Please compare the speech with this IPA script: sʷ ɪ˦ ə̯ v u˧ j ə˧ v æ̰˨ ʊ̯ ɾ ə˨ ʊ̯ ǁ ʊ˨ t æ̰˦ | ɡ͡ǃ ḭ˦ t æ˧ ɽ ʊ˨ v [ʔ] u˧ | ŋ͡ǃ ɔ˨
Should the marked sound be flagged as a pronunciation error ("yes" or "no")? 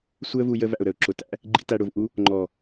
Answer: no